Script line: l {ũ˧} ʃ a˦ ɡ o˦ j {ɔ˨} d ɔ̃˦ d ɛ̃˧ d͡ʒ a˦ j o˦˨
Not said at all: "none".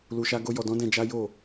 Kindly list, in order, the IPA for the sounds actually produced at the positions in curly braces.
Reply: u˧, ɔ˧

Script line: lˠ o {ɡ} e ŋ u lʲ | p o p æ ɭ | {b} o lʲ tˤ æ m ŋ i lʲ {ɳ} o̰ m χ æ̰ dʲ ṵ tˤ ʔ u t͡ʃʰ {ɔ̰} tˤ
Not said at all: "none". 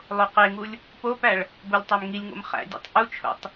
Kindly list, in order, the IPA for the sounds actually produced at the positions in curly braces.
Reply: q, b, ŋ, o̰

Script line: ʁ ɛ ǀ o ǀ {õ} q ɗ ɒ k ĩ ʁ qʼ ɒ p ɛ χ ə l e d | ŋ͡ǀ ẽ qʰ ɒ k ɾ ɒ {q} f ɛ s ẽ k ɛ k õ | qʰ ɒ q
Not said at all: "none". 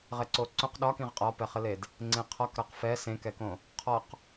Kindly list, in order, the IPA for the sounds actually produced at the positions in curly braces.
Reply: õ, q

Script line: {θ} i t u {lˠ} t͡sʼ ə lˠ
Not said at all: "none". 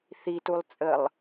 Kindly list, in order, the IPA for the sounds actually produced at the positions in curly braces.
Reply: θ, lˠ

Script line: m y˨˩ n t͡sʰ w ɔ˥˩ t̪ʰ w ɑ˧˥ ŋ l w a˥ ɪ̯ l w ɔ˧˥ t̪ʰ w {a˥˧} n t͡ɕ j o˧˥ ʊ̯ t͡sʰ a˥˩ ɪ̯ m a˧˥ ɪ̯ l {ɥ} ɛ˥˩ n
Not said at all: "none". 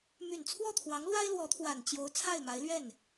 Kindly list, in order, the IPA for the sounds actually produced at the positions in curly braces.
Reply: a˨˩, ɥ

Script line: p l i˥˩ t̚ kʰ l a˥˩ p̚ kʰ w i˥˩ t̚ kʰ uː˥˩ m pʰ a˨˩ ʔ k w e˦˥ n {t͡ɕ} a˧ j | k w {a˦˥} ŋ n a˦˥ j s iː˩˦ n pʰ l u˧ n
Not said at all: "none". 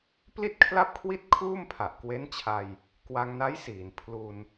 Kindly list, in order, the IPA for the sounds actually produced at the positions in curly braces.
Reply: t͡ɕʰ, a˧

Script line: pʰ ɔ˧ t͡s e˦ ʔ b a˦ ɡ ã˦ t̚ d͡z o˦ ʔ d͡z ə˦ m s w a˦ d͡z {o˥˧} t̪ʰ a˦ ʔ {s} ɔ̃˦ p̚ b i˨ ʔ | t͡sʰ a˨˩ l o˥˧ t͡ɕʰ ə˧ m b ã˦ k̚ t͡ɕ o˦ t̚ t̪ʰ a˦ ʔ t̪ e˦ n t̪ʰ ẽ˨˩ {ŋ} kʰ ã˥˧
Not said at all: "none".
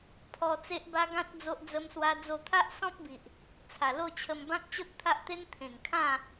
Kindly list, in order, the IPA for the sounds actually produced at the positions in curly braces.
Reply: o˥˧, s, ŋ

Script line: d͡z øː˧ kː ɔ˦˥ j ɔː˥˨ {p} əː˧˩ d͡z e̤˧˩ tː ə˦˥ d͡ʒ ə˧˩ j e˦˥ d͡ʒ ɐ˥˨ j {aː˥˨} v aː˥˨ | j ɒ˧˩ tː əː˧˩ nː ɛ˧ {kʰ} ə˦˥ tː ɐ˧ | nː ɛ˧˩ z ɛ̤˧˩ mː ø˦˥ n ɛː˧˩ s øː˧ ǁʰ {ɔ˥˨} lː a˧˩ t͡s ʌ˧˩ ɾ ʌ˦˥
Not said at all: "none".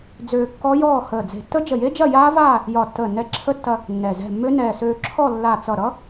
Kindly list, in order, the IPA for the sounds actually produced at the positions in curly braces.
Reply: h, aː˦˥, ǁʰ, ɔ˥˨

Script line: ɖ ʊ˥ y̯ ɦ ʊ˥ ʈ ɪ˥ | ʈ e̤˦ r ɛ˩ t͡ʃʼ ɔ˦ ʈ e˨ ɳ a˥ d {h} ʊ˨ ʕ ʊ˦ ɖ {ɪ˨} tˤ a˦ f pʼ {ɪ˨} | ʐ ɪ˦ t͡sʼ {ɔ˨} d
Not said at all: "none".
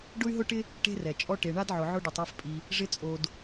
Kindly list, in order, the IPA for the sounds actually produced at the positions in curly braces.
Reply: ʕ, ɪ˨, i˨, o˨

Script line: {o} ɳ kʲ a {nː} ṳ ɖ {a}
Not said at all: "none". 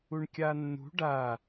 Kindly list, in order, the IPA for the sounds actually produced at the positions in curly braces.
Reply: u, nː, a

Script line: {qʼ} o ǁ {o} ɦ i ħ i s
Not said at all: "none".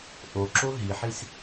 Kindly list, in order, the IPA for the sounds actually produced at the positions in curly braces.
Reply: ʔ, o

